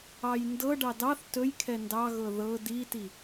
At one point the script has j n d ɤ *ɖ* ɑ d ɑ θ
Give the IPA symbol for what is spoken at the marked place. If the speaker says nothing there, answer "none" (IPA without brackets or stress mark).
ɖ